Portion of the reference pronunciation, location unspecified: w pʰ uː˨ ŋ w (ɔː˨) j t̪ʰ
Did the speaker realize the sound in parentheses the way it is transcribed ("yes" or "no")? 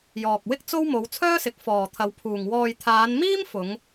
yes